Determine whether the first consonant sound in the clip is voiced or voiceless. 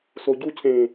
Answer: voiceless